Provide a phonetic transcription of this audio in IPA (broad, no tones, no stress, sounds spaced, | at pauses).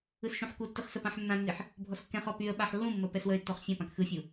ɯ s ʃ ũ ħ k u tː ɨ χ s ə p ã ħ nː ã nː i ħ | bʱ ɔ s kː ɛ̃ χ ɔ p y ə̯ ɓ a ħ lː ũ mː ə p ɛ s w ə ɪ̯ tː ɔ χ fʲ ã p ã k x ɯ fʲ u